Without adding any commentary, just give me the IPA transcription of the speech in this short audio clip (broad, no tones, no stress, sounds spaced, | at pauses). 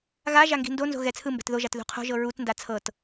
ɣ a ʒ a ŋ ɡ i̤ n d o n z o̤ ɣ ɛ t͡sʰ ɯ m b ɛ̤ t ð o ʒ a t ð ṳ qʰ o̤ ʒ ɤ ɹ u t n d a t͡sʰ ɤ t